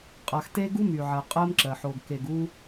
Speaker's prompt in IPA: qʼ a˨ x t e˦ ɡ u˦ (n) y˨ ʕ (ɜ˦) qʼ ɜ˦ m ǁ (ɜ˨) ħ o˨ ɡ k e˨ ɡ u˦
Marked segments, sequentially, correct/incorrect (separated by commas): incorrect, incorrect, correct